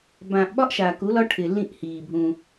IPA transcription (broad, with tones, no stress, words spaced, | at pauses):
bã˨ʔ ɓɒ˦ʔʃaː˨ku˨˦lɒ˦ ʈʰɪ˨lːĩ˦˨ʔhiː˨bʱũ˦